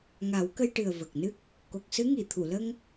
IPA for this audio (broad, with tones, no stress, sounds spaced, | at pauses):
ŋ a˨˩˦ w k ə˧ j ʈ ɨ˨˩ ə̯ v ə˨˩ k̚ n ɨ˦˥ k̚ | k o˨˩ k̚ s ɨ˧˥ ŋ i˨˩˨ t̪ʰ u˨˩˨ l ə˧ ŋ